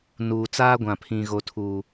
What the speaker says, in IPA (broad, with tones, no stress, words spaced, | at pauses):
nuː˨t͡saː˦ ɡʷã˨pʰĩ˨ ɣo˨tʰuː˨